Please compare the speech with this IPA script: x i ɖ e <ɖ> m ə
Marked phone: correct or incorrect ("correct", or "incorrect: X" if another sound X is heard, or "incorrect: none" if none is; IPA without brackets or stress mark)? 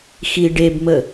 incorrect: b